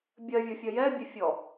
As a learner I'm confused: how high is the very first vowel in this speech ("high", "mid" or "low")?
mid